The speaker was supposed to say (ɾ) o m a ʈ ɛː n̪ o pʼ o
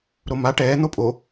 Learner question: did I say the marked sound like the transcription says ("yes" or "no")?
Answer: yes